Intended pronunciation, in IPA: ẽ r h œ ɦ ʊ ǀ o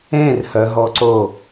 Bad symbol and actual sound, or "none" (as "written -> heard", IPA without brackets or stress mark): ʊ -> ɔ